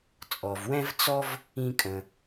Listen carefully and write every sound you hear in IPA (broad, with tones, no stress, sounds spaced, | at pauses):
t͡sʼ ɔ˩ v w ɛ̃˥ v t͡s ɔ˥ v | ĩ˧ kʼ ə̃˩